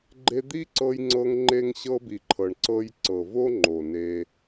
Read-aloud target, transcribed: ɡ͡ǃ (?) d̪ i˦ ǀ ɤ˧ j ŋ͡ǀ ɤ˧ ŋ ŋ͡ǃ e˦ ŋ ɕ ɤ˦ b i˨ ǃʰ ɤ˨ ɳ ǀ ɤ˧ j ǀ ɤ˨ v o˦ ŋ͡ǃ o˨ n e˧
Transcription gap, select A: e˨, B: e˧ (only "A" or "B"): B